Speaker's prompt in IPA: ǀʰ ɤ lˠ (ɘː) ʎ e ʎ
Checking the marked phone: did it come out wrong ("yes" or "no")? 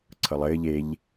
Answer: no